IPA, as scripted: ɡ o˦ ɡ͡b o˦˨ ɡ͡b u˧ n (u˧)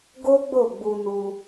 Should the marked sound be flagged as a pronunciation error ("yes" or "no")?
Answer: no